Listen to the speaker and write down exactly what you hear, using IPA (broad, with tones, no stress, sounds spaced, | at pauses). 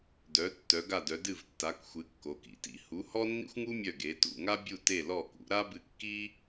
d œ˩˧ tː œ˩˧ ɡ a˧˩ d œ˩˧ d ɨ˧˩ v tː a˩˧ k xʷ ɨ˩˧ kː o˩˧ k ḭ˩˧ t ḭ˩˧ h u˩˧ h ɔ˦ nː ḭ˦ xʷ ŋ u˦ mʲ œ˧˩ ɡ e˩˧ t ṵ˧˩ ŋ a˦ bʲ u˧˩ t e˧˩ l ɔ˧˩ k ṵ˩˧ ɾ a˦ b ɨ˧˩ kː i˦